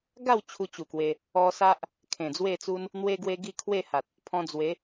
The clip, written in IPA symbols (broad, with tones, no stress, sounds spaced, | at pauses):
ɡ a˥˧ w t͡ɕʰ u˧ t͡ɕ u˨˩ k w e˧ | ɔ˧ s a˦ ʔ | kʰ ẽ˨˩ d͡z w e˥˧ t͡s u˦ n | n̪ w e˦ ɡ w e˧ ɡ i˥˧ kʰ w e˥˧ h a˨ t̚ | pʰ ɔ̃˧ d͡z w e˨˦